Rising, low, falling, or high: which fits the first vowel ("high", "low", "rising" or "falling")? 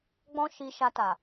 high